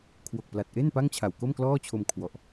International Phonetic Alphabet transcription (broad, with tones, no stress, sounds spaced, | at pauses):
kʰ w o˨˩ k̚ p l a˨˩ t̚ ʔ e˥˩ n p a˥˩ ŋ t͡ɕʰ a˨˩ w k o˥˩ m k l ɔː˥˩ t͡ɕʰ o˧ m kʰ w ɔ˨˩ ʔ